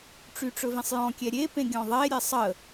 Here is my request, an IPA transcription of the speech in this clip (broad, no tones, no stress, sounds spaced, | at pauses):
ʈ͡ʂ y ʈ͡ʂ ɵ v ĩ sˤ j ɔ̃ kʲ ɛ ɾʲ e p ẽ ɡʲ ɔ̃ ðˤ e ɾʲ e sˤ ə